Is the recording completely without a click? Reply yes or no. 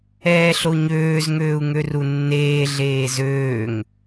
yes